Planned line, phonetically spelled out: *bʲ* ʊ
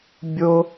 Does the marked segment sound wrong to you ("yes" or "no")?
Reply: no